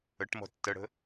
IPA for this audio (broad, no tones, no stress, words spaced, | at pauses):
əʈmɔ̤ tːəɽə̤